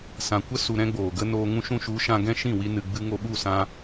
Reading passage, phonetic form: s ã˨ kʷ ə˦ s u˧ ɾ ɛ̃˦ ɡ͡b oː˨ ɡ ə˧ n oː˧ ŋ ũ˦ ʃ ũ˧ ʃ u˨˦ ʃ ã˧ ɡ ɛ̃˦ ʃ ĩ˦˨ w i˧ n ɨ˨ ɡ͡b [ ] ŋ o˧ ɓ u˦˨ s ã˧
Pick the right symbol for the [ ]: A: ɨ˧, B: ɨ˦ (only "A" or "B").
A